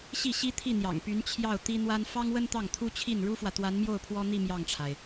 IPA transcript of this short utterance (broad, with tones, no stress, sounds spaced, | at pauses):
ɕ i˥˩ ɕ i˥ t̪ʰ i˥˩ n̪ j ɑ̰˨˩ ŋ p y˧˥ n t͡ɕʰ j ɑ˥˩ ʊ̯ t̪ i˥ n̪ w a˥ n f ɑ˥ ŋ w ə˥ n t̪ ɑ˥˩ ŋ t̪ʰ u˥ t͡ɕʰ i˥˩ n ɻ u˥ f w ä˨ t̪ w a˧˥ n m j o˥˩ ʊ̯ pʰ w ɔ˥ n̪ i˥˧ m j ɑ˥˩ ŋ ʈ͡ʂʰ a˩ ɪ̯